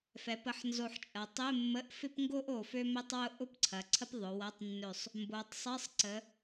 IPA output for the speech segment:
f ɛ˩˧ p ə˩˧ ħ n z o˧˩ ħ t͡ʃʼ ɐ˩˧ tˤ ɪ˧˥˧ mː ə˧˥˧ ʔ f ɪ˥ p ŋ ɡ o˥ ʔ o˧˩ f ø˥ m e˥ tˤ w ʊ˥ ʔ ʊ˥ p ǀʰ ɐ˩˧ ǀʰ ə˥ p ðˤ ʊ˩˧ w ɐ˧˥˧ tˤ nː ø˧˩ sˤ | m b o˩˧ tˤ sˤ ɪ˧˥˧ sˤ ǀ ə˩˧

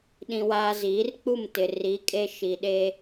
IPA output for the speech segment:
ɗ ĩ˦ w aː˦ z iː˨˦ r k͡p u˦˨ m t ɪ˨ r i˨˦ kʼ e˦ ʃ i˨ ɗ e˦

